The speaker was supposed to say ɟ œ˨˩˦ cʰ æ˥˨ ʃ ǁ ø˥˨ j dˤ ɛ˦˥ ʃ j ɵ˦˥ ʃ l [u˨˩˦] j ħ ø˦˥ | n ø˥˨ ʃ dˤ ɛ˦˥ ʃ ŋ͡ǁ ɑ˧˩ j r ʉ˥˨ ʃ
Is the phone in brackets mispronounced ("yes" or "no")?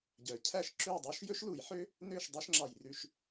no